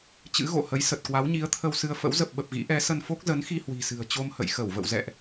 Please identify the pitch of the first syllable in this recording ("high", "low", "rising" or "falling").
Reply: rising